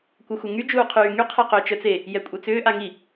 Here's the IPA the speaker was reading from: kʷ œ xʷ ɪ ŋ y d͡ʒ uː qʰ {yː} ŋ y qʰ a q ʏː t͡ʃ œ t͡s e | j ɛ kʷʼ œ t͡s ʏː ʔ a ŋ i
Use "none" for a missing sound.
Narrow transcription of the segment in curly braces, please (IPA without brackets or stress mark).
yː